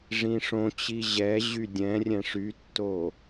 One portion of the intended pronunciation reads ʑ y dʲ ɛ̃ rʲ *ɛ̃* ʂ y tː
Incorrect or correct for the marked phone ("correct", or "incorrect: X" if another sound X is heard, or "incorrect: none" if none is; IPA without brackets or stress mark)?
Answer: correct